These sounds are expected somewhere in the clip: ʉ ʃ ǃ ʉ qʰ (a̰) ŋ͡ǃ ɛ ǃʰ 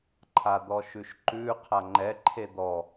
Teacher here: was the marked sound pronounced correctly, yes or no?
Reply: no